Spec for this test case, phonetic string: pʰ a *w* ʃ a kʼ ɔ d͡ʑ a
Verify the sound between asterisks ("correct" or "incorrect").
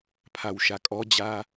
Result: correct